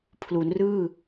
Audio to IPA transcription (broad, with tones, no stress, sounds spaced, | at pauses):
pʰ l u˩˦ n r ɯː˥˩